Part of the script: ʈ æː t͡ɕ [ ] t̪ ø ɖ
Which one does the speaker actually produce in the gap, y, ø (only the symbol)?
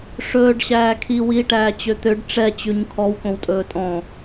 ø